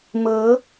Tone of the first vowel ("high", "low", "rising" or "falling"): rising